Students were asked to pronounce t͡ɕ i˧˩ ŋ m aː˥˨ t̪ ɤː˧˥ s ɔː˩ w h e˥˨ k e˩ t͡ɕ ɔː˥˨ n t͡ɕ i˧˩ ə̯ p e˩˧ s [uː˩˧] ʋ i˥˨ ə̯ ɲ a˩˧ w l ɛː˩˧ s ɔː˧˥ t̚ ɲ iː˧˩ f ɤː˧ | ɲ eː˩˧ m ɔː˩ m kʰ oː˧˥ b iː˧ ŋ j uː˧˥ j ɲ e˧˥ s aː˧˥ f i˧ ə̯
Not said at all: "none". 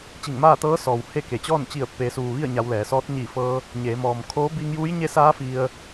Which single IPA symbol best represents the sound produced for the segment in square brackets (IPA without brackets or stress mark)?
uː˩